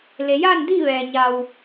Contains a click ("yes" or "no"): no